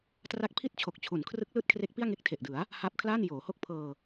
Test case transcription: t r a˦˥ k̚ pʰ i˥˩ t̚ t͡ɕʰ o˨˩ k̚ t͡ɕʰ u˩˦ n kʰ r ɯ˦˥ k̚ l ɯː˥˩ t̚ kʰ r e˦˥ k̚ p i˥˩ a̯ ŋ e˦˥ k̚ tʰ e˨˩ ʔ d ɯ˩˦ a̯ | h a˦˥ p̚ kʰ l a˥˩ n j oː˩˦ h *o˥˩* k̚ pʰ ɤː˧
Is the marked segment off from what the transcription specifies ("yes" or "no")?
no